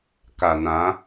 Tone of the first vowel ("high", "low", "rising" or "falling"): low